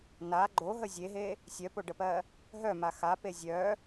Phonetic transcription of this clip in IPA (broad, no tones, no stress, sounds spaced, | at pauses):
n a ɡ͡ǃ o ɦ ə zʲ e ɦ e | sʲ œ p o ɖ ə p ɜ | ɦ œ m a x a p e zʲ œ